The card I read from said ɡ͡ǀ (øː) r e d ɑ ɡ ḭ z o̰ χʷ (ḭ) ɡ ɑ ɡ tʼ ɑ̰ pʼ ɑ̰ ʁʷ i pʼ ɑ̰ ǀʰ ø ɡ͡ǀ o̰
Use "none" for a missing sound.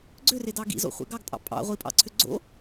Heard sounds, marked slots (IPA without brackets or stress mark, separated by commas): ø, ḛ